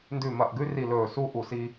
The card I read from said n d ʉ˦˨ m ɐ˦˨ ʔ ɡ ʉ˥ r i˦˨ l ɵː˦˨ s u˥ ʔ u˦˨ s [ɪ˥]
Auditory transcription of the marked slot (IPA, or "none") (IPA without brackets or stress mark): i˥